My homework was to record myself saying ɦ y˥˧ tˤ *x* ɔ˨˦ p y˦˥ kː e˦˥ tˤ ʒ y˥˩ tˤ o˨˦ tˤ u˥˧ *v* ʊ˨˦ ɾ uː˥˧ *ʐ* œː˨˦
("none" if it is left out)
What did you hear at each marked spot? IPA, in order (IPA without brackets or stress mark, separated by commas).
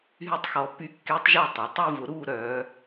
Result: x, v, ɾ